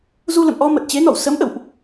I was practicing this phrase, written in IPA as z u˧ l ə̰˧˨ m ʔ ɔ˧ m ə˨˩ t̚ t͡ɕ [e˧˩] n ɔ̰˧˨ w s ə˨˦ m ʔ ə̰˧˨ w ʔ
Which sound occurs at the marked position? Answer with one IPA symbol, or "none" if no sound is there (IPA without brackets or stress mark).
e˨˦